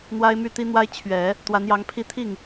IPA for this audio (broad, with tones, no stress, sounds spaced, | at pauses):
n̪ w a˥ ɪ̯ m y˥˩ t̪ i˥ n̪ w a˥ ɪ̯ t͡ɕʰ ɥ ɛ˨˩˦ | t̪ w a˧˥ n j ɑ˧˥ ŋ pʰ i˥˧ t̪ʰ i˥˩ ŋ